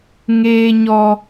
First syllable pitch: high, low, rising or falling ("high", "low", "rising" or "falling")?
high